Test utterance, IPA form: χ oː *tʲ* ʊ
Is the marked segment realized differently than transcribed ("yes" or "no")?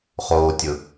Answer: no